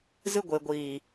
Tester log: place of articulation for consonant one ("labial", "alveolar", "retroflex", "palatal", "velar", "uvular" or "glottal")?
alveolar